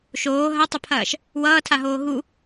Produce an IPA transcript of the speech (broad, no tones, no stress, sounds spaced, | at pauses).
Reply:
ʃ oː ɦ ɐ tˤ ə pʰ ɐː ʃ | w ʌː tʰ a ɦ oː ɦ u